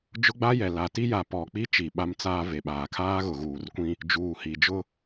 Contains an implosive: yes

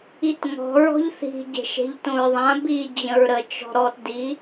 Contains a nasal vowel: yes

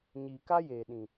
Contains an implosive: yes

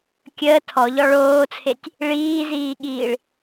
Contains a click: no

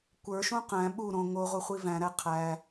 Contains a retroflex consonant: no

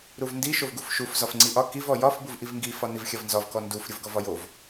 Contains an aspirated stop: no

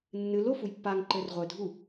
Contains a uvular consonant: yes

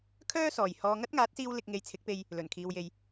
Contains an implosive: no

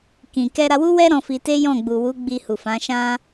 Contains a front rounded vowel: no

